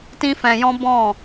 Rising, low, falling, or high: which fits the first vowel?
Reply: high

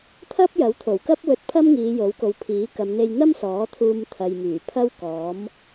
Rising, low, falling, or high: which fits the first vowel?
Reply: high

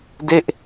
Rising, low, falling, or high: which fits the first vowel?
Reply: falling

